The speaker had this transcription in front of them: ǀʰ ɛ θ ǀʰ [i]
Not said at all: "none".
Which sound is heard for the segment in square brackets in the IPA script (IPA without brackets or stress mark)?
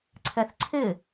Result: ɪ